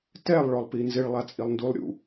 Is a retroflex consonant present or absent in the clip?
present